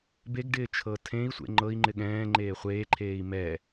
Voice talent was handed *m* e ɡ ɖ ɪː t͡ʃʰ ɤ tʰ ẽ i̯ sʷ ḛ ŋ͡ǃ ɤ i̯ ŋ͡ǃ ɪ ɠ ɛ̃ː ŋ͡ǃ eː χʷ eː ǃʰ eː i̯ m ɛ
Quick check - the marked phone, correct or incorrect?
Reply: incorrect